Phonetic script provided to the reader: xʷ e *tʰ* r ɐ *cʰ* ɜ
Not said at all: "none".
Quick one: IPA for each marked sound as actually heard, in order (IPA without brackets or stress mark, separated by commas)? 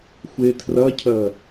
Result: tʰ, cʰ